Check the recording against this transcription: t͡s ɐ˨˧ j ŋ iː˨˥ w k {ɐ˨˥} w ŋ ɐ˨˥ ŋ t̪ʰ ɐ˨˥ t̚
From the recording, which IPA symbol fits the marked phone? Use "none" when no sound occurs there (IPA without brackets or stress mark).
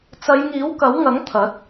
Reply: ɐ˨˥